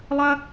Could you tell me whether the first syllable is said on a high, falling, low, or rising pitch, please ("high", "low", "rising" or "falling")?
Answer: high